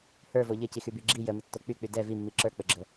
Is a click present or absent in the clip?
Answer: present